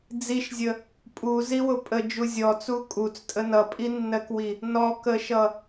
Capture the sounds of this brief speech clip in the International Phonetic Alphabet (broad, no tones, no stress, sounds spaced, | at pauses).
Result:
d͡z i ʃ zʲ ə | pʼ u z i w ʊ pʼ ə d͡ʒ u zʲ ɔ t͡s u kʼ u t͡s tʼ ə n ʌ pʼ i nː ɜ k w i | n ɔ k ə ʃ ʌ